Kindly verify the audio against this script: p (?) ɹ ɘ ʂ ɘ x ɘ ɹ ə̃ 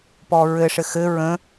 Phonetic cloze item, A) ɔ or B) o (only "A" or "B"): A